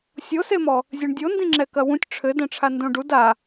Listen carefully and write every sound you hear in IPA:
sʲ o s e m ɔ | zʲ e ɳ dʲ o n d ĩ ŋ͡ǁ ɛ k ɐ w ũ tʲ ʈ͡ʂʰ ɘ d ɛ̃ ʈ͡ʂʰ a n d õ ɖ u d a

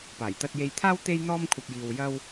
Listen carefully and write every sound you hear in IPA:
p aː˨˩ j t̪ ɐ˧ t̚ j e˧ j t̪ʰ aː˥ w t̪ e˥ j n̪ ɔː˥ m kʷʰ ɐ˧ p̚ j iː˧ w j ɐ˥ w

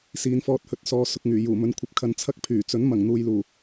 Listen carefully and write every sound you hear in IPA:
s iː˨ n f ɔː˧ t̚ h ɵ˧ t̚ s ɔː˧ s ʊ˧ k̚ ŋ yː˨˩ j uː˨˩ m ɵ˨˧ n kʷʰ ɐ˨˥ p̚ kʰ ɐ˧ n t͡sʰ ɐ˥ k̚ pʰ yː˨˩ t͡s ɵ˨˥ n m ɐ˨˩ ŋ n̪ uː˨ j l uː˨˩

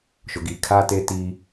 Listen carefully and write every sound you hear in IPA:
ʃ ʊ˨ ɡ i˨ kʰ a˦ t e˦ t i˦

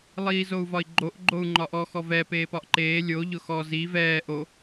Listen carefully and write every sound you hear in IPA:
lˠ iː z o u̯ v ɒ i̯ ɡ͡ǃ o ʔ ɡ͡ǃ o u̯ ŋ͡ǃ ɒ ʔ ɔ x ɔ v ɛ p eː p ɒ ʔ ǃ eː lʲ o ʎ ʊ x ɔ z i v ɛː ʔ o

